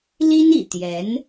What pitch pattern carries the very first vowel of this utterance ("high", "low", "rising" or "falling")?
high